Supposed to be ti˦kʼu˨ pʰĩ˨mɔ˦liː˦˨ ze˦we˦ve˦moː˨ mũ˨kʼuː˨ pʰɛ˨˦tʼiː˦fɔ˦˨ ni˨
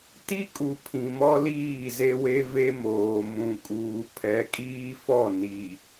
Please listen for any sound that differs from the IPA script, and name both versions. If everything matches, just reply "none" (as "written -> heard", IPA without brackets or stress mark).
tʼ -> kʼ